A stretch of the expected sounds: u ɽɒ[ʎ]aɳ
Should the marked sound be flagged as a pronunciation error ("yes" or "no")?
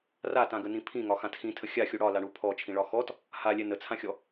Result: yes